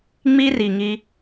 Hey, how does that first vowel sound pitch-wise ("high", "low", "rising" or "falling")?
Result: high